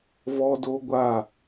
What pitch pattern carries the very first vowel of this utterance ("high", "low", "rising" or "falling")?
high